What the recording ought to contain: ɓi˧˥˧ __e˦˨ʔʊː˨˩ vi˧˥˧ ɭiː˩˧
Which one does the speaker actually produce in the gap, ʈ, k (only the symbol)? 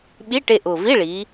ʈ